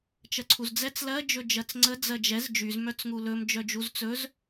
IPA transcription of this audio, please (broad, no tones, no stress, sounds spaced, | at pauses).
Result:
t͡ʃ ɜ ǀʰ u z d͡z ɛ t͡s l ɜ d͡ʒ ɵ d͡ʒ ɜ t͡s ŋ͡ǀ ə d͡z ɜ d͡ʒ ɛ z d͡ʒ y z m œ t͡s ŋ u l ɵ m d͡ʒ œ d͡ʒ u z t͡s ɵ z